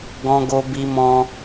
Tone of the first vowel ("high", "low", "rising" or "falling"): high